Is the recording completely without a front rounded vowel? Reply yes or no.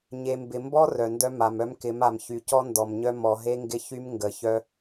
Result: no